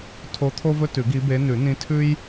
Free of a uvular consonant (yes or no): yes